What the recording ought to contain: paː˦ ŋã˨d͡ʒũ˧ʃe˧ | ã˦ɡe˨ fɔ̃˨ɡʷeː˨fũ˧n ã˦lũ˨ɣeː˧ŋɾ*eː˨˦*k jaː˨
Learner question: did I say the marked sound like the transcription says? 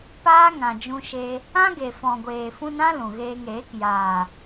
yes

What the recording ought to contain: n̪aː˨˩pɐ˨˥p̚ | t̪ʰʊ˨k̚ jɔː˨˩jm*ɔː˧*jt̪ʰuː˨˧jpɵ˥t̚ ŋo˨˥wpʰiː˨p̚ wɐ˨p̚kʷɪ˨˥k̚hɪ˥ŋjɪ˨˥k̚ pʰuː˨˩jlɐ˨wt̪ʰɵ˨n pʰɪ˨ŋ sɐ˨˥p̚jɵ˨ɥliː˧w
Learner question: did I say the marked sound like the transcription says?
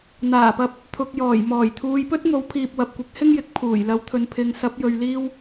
no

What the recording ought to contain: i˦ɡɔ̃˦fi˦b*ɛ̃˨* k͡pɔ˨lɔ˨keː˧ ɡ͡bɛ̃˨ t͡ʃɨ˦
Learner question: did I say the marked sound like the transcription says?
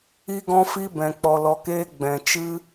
yes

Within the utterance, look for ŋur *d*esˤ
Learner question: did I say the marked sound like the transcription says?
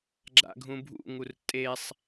no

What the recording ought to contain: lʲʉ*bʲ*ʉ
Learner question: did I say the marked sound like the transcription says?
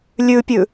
no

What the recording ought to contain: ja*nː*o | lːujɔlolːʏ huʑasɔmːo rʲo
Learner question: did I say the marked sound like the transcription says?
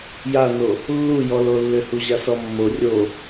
no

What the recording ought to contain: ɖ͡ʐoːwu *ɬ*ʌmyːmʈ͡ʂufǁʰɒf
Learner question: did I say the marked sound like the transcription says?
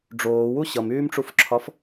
no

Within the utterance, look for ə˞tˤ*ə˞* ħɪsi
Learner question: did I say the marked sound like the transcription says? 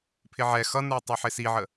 no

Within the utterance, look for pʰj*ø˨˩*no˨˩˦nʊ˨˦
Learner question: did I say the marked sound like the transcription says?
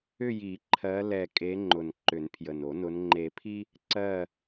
no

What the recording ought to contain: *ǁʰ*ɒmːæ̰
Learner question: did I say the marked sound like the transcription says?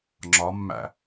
no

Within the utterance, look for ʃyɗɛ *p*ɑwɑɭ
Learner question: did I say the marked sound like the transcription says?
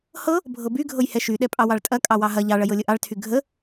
no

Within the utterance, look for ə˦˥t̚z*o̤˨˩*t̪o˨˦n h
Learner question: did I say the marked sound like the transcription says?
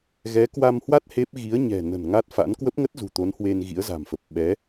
no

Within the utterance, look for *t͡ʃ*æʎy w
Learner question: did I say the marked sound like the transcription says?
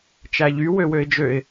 yes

